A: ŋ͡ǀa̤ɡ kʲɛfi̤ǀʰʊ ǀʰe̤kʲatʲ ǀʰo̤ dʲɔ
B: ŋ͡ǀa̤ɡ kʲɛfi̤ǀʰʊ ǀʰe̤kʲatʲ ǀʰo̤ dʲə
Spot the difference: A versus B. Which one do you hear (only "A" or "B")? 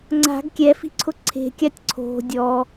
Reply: A